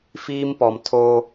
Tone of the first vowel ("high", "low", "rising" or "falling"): high